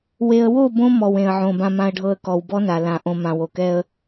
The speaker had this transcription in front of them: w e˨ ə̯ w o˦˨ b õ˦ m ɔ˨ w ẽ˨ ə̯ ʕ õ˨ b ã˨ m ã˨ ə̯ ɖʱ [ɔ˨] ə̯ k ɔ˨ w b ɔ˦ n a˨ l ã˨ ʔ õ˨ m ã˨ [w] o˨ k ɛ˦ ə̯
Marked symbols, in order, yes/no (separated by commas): no, yes